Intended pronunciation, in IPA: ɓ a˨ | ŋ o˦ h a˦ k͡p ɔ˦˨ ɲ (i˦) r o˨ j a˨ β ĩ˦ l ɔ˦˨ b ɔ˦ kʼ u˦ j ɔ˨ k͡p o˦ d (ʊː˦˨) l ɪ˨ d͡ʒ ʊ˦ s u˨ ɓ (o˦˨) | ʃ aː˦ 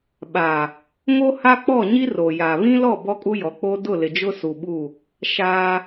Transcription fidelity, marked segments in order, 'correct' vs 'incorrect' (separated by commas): correct, incorrect, incorrect